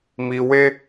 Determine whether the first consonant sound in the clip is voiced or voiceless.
voiced